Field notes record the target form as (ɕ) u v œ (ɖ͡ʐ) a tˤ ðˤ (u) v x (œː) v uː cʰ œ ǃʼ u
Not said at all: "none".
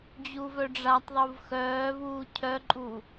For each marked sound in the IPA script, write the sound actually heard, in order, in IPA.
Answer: d͡ʑ, ɖ͡ʐ, u, œː

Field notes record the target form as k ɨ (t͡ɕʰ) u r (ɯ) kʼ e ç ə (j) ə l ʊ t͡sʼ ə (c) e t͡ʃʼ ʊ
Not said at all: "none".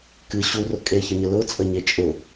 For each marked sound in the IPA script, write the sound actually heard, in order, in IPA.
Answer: ɕ, ʊ, ɲ, ɲ

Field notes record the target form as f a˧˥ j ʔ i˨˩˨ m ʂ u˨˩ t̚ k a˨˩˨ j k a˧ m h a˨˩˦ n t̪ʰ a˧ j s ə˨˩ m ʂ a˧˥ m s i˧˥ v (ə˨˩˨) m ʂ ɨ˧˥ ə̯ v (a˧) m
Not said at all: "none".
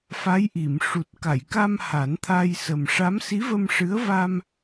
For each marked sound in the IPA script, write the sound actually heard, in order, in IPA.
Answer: ə˧, a˧

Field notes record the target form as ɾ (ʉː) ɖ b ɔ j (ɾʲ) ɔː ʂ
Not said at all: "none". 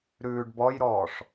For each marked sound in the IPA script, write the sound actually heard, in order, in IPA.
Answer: ʉː, ɾ

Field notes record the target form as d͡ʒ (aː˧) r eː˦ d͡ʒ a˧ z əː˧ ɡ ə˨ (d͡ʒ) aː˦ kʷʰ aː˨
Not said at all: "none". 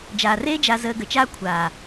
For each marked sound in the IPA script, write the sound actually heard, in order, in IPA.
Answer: aː˨, t͡ʃ

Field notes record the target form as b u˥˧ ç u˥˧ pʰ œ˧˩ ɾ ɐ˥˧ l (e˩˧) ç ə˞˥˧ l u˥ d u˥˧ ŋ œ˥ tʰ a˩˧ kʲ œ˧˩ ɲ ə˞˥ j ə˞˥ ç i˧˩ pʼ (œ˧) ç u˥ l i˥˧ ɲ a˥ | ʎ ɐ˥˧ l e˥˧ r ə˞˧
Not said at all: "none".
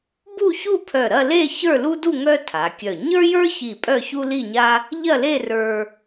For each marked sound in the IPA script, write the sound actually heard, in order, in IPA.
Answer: e˥˧, œ˥˧

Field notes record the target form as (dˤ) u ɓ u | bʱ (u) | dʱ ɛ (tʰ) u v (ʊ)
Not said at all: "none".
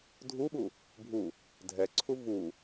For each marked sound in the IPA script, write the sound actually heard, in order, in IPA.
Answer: dʱ, u, ǀʰ, u

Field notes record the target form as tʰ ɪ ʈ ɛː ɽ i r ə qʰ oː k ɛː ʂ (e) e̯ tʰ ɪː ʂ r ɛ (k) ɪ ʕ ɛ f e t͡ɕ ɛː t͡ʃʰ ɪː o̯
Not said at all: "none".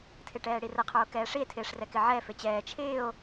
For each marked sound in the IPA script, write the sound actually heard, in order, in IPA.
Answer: i, k

